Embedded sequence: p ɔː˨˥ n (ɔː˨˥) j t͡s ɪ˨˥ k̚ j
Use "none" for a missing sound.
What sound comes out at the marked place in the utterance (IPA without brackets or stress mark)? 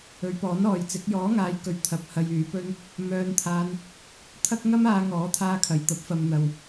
ɔː˨